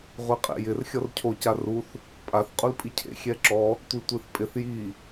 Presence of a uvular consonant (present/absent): present